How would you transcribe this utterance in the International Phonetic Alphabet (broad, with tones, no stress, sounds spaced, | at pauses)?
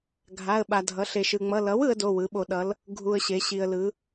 ɡʱ a˧˥˧ ə̯ ɓ a˧ dʱ ʌ˨˥ ɬ e˧ ʃ ɯ˧ ŋ͡m ʌ˧˥˧ l ʌ˨˥ w ɯ˨˥ ə̯ d o˧˥˧ w ɯ˨˥ ɓ o˧ ɗ ʌ˨˥ l | ɡʱ u˧ ə̯ ɕ e˨˥ ɕ i˧ ə̯ l ɯ˨˥